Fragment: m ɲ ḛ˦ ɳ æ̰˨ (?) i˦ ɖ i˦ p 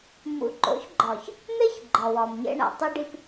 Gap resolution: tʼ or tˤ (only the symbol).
tˤ